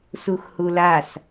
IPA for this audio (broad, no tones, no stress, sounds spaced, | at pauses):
s u x h u l a s